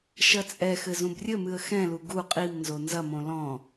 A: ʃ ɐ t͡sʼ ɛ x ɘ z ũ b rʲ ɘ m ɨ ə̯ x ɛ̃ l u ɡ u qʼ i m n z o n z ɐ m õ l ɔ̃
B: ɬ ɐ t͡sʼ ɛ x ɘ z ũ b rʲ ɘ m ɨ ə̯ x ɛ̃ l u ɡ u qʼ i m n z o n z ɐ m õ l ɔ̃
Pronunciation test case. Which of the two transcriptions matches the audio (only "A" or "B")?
A